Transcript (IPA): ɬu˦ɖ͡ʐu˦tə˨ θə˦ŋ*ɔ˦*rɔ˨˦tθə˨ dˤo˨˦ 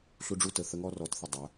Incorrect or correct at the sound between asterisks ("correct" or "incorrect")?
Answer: correct